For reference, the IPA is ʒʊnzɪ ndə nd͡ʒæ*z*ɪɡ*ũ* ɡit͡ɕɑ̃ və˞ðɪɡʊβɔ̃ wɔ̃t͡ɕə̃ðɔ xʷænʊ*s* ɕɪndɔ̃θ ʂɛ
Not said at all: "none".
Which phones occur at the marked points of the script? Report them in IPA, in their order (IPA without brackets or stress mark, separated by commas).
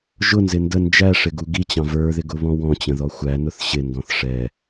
ʂ, u, θ